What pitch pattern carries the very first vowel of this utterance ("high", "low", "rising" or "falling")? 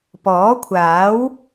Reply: rising